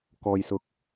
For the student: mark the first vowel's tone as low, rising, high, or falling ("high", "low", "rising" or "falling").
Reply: low